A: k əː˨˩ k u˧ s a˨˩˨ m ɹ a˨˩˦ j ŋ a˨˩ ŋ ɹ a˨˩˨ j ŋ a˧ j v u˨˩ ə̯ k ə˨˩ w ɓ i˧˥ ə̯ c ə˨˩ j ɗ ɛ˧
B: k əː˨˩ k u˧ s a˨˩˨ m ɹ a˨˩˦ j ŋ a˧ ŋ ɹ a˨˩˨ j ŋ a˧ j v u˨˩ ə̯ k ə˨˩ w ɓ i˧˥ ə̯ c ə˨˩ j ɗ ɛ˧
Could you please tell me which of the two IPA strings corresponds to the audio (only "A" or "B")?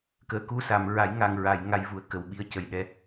A